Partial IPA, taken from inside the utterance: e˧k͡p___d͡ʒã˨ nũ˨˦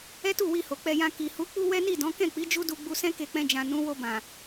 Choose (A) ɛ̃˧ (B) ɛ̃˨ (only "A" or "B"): A